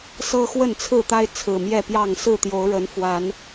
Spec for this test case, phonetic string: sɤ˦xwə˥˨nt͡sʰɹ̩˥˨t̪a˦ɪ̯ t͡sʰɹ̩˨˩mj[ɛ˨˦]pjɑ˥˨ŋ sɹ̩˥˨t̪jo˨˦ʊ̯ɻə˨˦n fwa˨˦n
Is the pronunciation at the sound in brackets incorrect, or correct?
incorrect